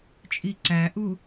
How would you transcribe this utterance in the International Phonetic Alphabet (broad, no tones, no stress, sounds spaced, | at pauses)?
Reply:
t͡ʃʼ i ǀ æ ʔ u